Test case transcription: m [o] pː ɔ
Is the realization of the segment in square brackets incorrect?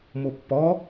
no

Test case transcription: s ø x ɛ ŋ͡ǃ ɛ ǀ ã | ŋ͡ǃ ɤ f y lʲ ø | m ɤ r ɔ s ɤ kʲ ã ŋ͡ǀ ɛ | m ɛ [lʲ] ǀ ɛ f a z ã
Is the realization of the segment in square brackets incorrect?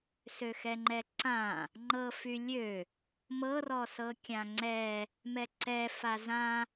yes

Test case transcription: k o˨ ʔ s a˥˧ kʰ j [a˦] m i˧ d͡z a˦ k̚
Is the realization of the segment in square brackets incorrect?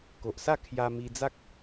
yes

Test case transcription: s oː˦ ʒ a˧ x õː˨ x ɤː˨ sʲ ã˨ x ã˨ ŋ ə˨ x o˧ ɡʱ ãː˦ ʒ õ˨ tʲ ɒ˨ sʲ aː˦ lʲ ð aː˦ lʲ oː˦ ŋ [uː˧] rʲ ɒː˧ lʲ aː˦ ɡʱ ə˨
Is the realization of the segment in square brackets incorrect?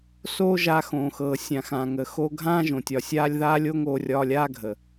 yes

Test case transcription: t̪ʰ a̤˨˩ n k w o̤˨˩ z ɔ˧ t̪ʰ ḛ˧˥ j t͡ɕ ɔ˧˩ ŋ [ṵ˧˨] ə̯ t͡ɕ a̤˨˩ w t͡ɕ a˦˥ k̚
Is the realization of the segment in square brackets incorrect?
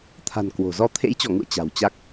no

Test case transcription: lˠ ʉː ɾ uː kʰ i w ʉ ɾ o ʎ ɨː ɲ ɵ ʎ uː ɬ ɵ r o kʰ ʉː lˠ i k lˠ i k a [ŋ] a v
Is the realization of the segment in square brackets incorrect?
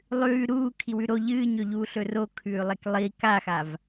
yes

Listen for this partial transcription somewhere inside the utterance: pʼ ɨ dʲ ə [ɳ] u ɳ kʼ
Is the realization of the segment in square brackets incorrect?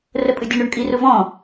no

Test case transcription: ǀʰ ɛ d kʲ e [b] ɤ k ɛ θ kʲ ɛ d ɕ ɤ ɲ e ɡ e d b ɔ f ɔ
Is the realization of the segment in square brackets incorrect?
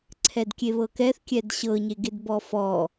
yes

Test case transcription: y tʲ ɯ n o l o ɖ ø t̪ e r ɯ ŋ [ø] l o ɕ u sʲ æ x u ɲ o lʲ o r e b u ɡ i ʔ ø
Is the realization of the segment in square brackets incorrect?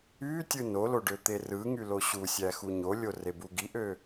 yes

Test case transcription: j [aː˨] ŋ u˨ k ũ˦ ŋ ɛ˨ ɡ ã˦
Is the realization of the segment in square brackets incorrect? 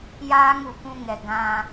yes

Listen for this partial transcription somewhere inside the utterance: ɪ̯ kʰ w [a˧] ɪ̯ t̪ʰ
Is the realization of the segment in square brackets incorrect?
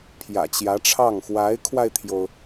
no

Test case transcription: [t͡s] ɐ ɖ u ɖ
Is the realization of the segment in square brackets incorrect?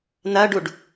yes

